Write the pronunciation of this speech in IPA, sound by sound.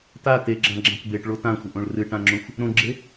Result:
t a t e ɡ͡ǁ ã ɡ͡ǁ ã k b e ʈ ɭ o t ã xʷ ə ʔ õ ɭ r ɨ ʈ ã ŋ͡ǁ õ xʷ | ɾ õ ɡ͡ǁ e

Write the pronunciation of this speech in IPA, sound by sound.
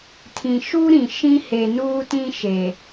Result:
tʰ ĩ˨ ʃ u˦ ɾ ĩ˨ ʃ ĩ˦ h e˨ n uː˦ t ĩ˦ ʃ e˨

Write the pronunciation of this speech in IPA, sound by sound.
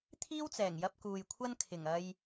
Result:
t̪ʰ iː˥ w t͡s ɛː˨˩ ŋ j ɐ˧ p̚ k uː˨ j kʷʰ ɐ˥ n kʰ ɪ˨˩ ŋ ɐ˧ j

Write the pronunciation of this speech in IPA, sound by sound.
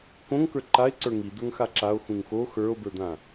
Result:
k õ ŋ k ə˞ ǃ a e̯ ǀ ə˞ ŋ i d̪ ə˞ ŋ x a ǁ a o̯ x ũ ŋ x o x ə˞ o̯ b ə˞ d̪ ã

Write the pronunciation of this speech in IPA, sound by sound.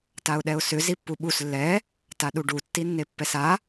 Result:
t a ʊ̯ ɗ ɛ ʊ̯ s ʏ z i pː u ɓ u s lː ɛ | t a ɗ u ɖ u tː i nː e pː ɛ s a

